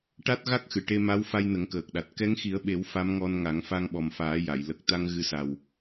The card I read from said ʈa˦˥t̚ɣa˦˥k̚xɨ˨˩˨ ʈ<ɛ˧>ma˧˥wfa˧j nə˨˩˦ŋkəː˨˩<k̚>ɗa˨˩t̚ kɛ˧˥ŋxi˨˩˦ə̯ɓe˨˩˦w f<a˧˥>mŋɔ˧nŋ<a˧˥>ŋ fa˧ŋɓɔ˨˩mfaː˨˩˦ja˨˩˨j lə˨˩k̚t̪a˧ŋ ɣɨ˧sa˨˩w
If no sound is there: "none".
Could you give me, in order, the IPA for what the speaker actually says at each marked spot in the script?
e˧, k̚, a˧˥, a˨˩˦

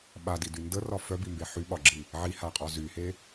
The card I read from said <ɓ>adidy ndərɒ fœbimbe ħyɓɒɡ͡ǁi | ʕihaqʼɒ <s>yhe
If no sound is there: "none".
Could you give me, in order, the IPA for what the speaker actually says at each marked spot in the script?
ɓ, z

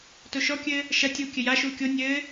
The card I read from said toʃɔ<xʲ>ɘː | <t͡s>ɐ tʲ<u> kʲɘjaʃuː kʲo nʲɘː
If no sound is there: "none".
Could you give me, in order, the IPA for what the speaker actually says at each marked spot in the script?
kʲ, ʃ, u

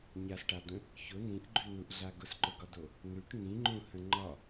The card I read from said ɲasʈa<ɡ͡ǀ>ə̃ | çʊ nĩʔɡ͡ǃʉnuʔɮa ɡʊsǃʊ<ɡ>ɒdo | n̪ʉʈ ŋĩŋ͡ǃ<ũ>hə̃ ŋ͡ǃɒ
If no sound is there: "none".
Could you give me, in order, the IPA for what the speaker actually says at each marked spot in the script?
d̪, ɡ, ũ

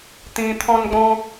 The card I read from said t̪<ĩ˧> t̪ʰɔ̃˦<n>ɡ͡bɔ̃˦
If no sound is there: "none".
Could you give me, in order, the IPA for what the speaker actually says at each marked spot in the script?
ĩ˧, n

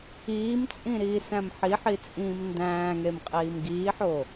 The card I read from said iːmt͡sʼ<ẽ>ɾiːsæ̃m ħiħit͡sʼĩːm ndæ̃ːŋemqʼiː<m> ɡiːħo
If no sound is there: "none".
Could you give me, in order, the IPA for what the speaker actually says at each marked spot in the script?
ĩ, m

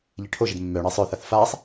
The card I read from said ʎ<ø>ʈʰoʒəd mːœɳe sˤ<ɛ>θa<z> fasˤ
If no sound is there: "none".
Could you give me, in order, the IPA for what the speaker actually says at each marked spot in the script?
e, œ, θ

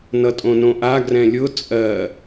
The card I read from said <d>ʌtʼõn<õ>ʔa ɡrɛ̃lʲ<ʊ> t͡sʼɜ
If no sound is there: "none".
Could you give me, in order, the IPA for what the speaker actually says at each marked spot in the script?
n, õ, ʊ

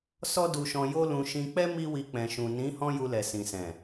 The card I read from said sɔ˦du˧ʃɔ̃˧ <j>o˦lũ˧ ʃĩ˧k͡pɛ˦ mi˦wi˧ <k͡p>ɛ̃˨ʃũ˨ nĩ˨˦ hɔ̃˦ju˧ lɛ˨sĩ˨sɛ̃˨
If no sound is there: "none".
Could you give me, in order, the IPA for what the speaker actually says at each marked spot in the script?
j, k͡p

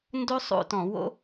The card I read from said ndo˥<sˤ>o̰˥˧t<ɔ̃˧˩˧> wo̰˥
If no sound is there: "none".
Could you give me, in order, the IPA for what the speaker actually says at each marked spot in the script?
sˤ, ɔ̃˧˩˧

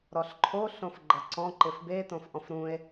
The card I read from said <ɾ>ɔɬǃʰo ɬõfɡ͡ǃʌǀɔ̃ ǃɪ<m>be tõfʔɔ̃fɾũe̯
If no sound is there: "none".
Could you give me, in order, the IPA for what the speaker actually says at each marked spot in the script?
ɾ, f

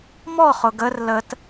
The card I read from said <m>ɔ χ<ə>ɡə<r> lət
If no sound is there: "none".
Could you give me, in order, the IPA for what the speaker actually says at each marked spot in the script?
m, ʊ, r

